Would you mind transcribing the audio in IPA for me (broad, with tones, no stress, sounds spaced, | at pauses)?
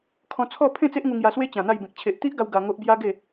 kʰ ɔ̃˧ t͡sʰ ɔ˥˧ pʰ ẽ˥˧ t͡s e˦ ʔ ŋ u˧ ŋ j a˧ s w e˦ t͡ɕ ã˨˩ n̪ a˥˧ j b ẽ˨ k̚ t͡ɕʰ e˨ ʔ t̪ i˦ ʔ ɡ a˧ w ɡ a˧ ŋ o˦ ʔ b j a˦ ɡ e˥˧